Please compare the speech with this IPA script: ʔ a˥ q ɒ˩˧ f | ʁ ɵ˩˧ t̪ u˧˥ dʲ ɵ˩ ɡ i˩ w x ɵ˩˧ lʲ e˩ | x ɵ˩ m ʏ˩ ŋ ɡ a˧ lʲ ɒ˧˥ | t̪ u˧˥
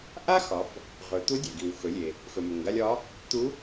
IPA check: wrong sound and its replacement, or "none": q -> x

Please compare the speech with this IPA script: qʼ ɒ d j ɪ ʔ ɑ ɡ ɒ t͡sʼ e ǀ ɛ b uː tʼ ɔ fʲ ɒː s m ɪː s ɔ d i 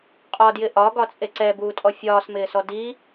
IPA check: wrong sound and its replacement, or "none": ɑ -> ɒ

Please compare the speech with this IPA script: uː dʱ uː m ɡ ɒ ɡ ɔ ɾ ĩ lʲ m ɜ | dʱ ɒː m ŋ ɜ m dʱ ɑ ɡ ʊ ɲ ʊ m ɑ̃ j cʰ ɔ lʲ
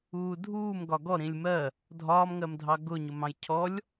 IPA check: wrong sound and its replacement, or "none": none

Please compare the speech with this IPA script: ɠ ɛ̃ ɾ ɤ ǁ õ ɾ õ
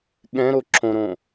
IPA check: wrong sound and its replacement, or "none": ɤ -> o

